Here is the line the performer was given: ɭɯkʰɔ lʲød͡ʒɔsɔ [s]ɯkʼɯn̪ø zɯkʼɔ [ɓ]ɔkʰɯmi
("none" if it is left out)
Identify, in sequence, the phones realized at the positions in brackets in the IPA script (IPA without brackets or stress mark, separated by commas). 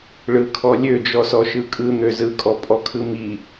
ʃ, pʼ